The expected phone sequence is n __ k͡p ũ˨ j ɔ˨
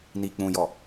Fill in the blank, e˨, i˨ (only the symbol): i˨